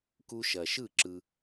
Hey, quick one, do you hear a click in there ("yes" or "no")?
yes